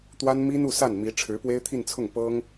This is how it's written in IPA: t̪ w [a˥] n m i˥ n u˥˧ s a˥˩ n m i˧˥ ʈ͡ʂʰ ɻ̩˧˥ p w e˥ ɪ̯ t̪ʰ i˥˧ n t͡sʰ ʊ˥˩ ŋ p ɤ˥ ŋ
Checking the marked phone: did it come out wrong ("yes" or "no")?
no